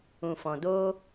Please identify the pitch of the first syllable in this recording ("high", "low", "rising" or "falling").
low